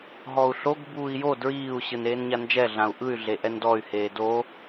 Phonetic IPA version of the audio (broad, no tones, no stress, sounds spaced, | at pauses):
ɦ ɔ u̯ ɬ o ɡ b uː i̯ j o d ɹ iː u̯ ɕ ɯ n eː n ɲ a n d͡ʒ ɛ ɮ ã u̯ ʔ ɯ y̯ ɮ e ʔ ɛ n d ɔ y̯ h eː d o